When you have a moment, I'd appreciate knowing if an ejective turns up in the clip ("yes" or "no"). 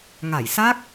no